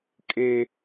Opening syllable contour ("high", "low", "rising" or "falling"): high